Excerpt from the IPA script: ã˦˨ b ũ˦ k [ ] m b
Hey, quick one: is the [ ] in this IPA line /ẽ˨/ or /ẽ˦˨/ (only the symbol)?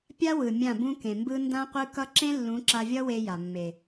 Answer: ẽ˨